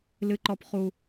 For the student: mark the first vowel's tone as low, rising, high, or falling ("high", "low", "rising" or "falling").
high